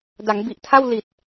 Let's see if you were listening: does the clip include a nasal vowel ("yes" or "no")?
no